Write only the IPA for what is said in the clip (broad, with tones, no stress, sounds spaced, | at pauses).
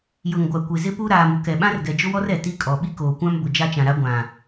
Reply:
j ʊ˨ ŋ ɡʷ a˨ kʷ e˨ z ɪ˦ p u˦ ɾ aː˨ m u˨ k ɛ˨ ɓ ã˦ r ɡ ɛ˨ d͡ʒ ʊ˦ w ɔ˦ r ɛ˨ t i˦ kʼ ɔ˨ ɓ i˦ k oː˨ kʷ ã˦ m b ʊ˨ d͡ʒ a˦ t͡ʃ ã˨ ɾ a˦ ɡʷ ã˨